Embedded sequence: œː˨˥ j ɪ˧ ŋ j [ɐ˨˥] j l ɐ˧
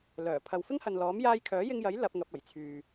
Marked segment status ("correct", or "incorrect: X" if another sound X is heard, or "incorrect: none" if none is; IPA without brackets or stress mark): correct